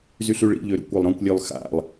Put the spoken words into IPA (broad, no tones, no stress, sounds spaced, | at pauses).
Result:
z y ɬ y ɭ ḭ ʎ ø ɾ ṵ kʷ ɒ lˠ ɾ ɔ̃ kʷ lʲ ø lˠ x a̰ lˠ